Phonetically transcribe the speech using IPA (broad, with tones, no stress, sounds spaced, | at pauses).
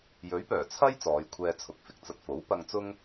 j ɵ˨˥ ɥ p œː˨˩ t͡sʰ ɐ˥ j t͡s ɔː˨˧ j kʷʰ ɛː˧ t͡sʰ ʊ˨˥ k̚ f ɪ˨ k̚ t͡s ɐ˧ t̚ f o˨˥ w p ɐ˧ ŋ t͡s ʊ˥ ŋ